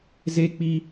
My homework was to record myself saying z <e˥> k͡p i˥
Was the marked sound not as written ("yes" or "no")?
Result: no